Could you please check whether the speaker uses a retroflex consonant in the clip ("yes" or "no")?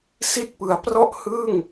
no